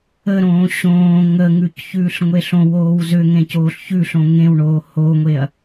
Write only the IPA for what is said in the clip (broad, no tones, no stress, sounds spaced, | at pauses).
ə ɾ õː ɕ õː ŋ ə ŋ ʉ c ç ʉː ɬ ŋʷ e ɬ õ w oː w z ʏ ŋ ẽ c oː ɬ ç ʉ ɬ õ ŋ ẽ w ɳ oː h o ŋʷ e ɐ̯